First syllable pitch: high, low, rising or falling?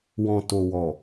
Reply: low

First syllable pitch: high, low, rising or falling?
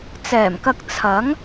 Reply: low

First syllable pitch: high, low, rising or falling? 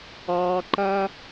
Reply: high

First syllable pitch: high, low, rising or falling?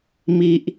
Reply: low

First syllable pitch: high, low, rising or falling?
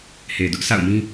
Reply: low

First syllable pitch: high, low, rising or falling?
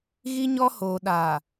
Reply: high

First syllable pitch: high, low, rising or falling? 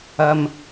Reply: low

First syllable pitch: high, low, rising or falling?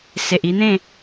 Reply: low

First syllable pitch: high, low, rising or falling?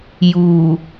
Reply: low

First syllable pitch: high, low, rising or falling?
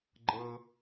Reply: high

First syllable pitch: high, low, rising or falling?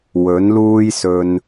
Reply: rising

